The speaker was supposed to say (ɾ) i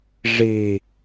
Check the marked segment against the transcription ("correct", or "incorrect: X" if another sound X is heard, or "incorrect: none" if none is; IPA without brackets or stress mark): incorrect: ʐ